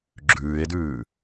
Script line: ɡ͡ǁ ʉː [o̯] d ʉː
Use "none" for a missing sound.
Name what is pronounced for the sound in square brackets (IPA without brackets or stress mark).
e̯